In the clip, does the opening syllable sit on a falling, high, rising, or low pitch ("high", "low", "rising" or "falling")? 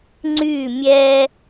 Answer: falling